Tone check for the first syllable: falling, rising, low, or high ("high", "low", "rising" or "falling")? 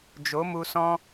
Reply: rising